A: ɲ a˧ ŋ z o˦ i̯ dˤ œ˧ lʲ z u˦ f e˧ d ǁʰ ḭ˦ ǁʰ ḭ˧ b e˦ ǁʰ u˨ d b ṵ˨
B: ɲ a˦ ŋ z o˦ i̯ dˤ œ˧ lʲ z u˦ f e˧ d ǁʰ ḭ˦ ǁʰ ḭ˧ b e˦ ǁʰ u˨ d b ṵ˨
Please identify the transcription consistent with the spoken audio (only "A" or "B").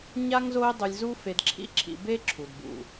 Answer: B